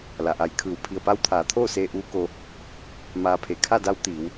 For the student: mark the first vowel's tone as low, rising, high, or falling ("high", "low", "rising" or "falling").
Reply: low